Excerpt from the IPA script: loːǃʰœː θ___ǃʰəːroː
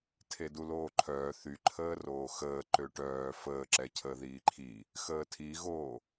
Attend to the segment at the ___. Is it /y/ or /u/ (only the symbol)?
y